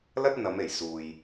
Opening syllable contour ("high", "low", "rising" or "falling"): high